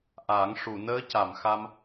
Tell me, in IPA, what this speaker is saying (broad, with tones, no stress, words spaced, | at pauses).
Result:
ʔa˨˩˦ŋ ʂu˨˩˨ nəː˧˥ca˨˩˨m xa˧m